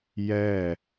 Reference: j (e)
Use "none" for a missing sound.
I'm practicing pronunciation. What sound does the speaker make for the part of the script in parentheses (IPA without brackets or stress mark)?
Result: ɛ